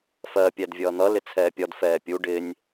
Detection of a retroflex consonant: present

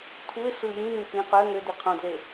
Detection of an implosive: absent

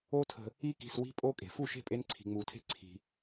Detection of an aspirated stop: present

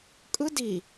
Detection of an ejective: present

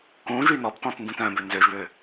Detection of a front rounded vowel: present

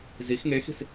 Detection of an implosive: absent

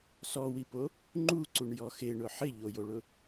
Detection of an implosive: absent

